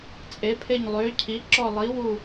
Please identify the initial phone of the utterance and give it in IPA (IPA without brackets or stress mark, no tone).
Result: t͡sʼ